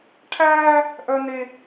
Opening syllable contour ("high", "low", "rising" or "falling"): high